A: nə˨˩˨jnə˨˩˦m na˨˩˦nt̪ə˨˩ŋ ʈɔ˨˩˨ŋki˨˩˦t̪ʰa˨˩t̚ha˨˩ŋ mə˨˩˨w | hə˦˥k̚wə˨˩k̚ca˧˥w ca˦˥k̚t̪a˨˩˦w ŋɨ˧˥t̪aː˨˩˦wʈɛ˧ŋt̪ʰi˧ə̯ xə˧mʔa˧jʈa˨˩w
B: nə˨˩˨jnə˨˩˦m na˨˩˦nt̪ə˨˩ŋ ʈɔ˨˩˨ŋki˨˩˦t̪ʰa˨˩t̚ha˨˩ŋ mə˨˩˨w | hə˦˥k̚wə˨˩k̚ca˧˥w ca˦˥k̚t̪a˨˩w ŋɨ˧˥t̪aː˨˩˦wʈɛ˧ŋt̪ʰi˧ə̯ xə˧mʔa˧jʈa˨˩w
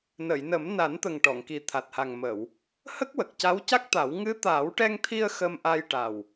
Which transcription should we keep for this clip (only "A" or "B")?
A